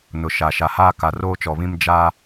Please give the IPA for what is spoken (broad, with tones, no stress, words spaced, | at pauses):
nʊ˨ʃa˨ ʃa˨haː˦ka˨r oː˦t͡ʃɔ˨βĩ˦m d͡ʒaː˦